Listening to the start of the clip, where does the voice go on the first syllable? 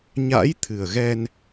rising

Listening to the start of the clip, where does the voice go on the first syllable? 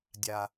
low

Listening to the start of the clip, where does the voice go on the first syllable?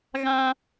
low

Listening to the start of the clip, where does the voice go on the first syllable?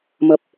low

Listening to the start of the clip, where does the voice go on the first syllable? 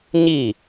falling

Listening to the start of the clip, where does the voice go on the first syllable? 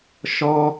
high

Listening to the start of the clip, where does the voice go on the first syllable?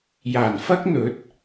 low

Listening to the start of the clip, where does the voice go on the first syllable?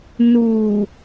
low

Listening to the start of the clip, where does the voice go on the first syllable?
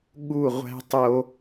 falling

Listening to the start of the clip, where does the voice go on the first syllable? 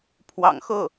low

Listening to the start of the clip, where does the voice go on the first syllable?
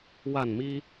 falling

